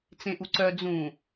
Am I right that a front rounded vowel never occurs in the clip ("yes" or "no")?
no